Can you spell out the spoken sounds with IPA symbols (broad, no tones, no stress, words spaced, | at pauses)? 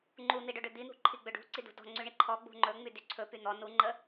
ŋ͡ǃun̪iɖɵɖʏ d̪in̪ṳǃʰiɡ͡bʏ ɖṳǀidṳ dɔ̤ ŋ͡ǀyɳiǃʰɔ ɡ͡bṳŋ͡ǃɵ ŋ͡mydyǀʰɵ pyn̪ɔ nuŋ͡ǃə